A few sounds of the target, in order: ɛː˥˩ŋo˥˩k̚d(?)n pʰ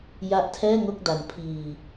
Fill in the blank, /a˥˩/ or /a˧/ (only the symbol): a˧